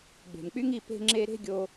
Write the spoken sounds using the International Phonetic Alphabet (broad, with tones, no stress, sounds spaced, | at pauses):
ɡ͡b e̤˨ m k͡p y˦ ŋ i˧ p e̤˦ ŋ͡ǁ e˦ ɾ e̤˦ ɡʲ o˧